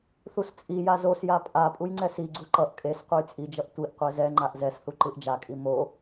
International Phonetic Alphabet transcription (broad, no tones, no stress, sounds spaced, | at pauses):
θ u s t͡sʼ i j a z o s j a pʼ a pʼ u j ŋ͡ǀ ɛ s i ɡ͡ǀ u ǃ ʌ ʔ kʼ e s qʷ ʌ j t͡sʼ i d͡ʒ ʌ ʔ tʷ i ʔ qʷ ɛ z ɛ ŋ͡ǃ a ʔ z ɛ s θ u ǃ ɯ ʔ d͡ʒ a kʼ i m o